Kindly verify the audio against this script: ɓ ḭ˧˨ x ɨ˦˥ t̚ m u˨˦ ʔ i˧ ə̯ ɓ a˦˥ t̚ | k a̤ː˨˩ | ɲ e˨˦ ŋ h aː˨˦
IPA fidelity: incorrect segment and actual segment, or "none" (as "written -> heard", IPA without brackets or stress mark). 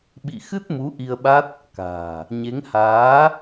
none